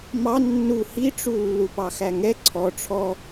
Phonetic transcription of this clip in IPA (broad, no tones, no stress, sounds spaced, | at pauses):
m ɑ nː u h i ʈ͡ʂ u lː u p ɑ x æ ŋ ɛ ǀʰ ɔ ʈ͡ʂʰ ɔ